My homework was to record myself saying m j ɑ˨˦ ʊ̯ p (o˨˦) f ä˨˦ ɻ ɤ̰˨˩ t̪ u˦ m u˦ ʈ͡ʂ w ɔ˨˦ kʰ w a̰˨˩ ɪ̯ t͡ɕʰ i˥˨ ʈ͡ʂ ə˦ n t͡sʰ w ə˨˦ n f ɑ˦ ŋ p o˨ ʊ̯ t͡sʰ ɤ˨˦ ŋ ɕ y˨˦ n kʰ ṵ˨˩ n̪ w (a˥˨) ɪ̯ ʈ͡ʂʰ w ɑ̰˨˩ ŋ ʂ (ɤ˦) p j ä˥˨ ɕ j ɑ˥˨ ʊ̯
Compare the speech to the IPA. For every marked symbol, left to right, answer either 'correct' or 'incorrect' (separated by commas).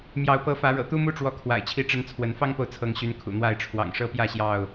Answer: incorrect, correct, correct